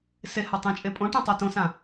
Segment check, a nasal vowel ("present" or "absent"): present